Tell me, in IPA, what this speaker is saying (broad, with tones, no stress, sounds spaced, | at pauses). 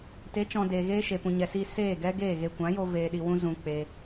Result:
t e˨˦ t͡ʃ ɔ̃˨ d eː˨ ɣ eː˧ ʃ e˨ p ũ˨ ɲ ɛ˨ s iː˧ s eː˦˨ ɡ ɛ˦ ɡ eː˦˨ ɣ e˧ kʷ ã˨˦ j o˧ v eː˨ ɗ i˨ w ũ˧ z ũ˧ k͡p eː˦